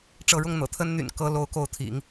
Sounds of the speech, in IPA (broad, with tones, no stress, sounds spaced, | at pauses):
ʈ͡ʂ ɤ˧˥ ɻ ʊ˥˩ ŋ n̪ ɤ̰˨˩ t̪ʰ ə˥ n n̪ y̰˨˩ n k ɤ˥ l o˥ ʊ̯ k o˥˩ ʊ̯ t̪ʰ ḭ˨˩˦ ŋ